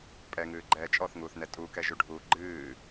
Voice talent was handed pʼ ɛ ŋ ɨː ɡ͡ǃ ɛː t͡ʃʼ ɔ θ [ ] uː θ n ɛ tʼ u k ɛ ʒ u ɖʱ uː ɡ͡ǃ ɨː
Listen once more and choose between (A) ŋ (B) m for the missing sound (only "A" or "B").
A